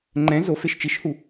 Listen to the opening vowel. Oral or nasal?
nasal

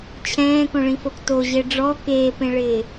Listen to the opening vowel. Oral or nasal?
nasal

